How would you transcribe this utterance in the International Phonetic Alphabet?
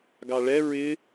ɡ ɑ ɭ ɛ ɹ ɪ

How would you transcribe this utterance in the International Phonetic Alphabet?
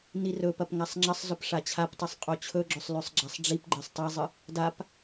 n i r ɵ p ɐ p ŋ a sˤ ŋ͡ǁ ɐ sˤ z ɵ p ʂ a t͡ɕʰ a p tˤ ɨ sˤ qʼ o t͡ɕʰ ɵ ɡ͡ǁ ɵ sˤ l ʉ sˤ ɡ͡ǁ a sˤ ɖ͡ʐ i p ɡ͡ǃ e sˤ tˤ i zˤ ɨ | d a p

